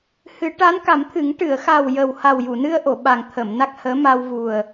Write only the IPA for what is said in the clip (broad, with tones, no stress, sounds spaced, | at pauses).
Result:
h ɨ˨˩˦ ʈ a˧˥ n k a˨˩˦ m t̪ʰ ɨ˨˩˦ ŋ ʈ ɨ˨˩˨ ə̯ x a˨˩ w j ə˨˩ w h a˨˩ w j u˨˩˨ n ɨ˧ ə̯ ʔ o˨˩˨ ɓ a˨˩ ŋ t̪ʰ ə˨˩˨ m n a˦˥ k̚ h əː˧˥ m a˧ w v u˨˩ ə̯